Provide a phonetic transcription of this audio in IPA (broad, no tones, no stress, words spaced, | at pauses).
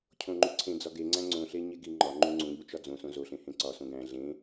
cʰõŋ͡ǃuǀʰẽd͡zɒ ɡeŋ͡ǀæ̃ ŋ͡ǀõɬe ɲeɡiŋ͡ǃɒŋ͡ǃũ ŋ͡ǀũʎu t͡ʃɒd͡zõsõ zoɬẽ hẽǀɒsõ ɡæ̃ ɮẽ